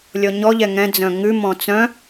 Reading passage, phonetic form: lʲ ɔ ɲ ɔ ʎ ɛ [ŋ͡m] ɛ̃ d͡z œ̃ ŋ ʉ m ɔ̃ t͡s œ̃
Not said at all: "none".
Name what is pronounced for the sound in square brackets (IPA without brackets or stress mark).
ŋ